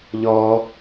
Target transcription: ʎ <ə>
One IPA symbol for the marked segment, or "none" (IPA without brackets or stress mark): ɔ